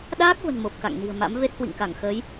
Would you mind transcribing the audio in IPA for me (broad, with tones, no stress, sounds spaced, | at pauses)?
ɗ aː˦˥ k̚ v ə̤˨˩ n m o˨˩ p̚ k a̰˧˨ ŋ n i̤˨˩ ə̯ m a̰˧˥ m v e˦˥ t̚ h w ḭ˧˨ ŋ k a˧˩ ŋ x əː˨˦ j